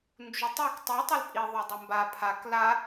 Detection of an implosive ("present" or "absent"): absent